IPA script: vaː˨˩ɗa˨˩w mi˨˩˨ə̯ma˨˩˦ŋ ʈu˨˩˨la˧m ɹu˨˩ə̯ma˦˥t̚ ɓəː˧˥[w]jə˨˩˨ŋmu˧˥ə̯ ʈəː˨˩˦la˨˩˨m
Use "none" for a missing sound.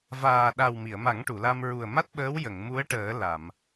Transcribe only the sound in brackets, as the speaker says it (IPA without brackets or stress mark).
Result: w